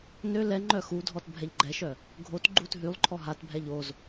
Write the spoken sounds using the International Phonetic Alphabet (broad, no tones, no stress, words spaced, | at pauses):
nø lɛ ŋ͡ǃœxudʱɔt bʱɛʎɡ͡ǃɛʃœ | ɡʱot ɡ͡ǃut ɦylˠǃʰɔ ɦatbʱɛʎ oz